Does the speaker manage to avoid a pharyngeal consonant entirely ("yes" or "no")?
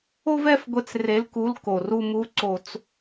yes